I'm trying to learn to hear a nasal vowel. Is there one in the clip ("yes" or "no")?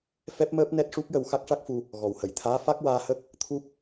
no